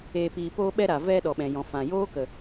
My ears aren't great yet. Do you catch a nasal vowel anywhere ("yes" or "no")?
yes